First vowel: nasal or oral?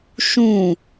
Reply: nasal